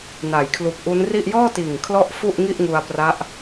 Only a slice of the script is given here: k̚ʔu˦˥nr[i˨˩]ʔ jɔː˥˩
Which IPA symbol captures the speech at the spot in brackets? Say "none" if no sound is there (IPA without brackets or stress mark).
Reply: i˥˩